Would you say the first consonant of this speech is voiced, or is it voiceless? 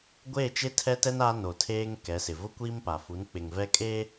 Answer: voiced